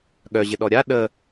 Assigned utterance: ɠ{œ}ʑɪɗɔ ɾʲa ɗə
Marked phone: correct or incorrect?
correct